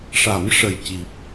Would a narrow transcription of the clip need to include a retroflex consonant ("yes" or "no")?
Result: yes